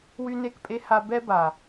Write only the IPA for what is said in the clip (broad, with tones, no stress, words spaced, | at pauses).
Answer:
wy˦ne˦kpʼe˦ ha˦ bɛ˦ba˨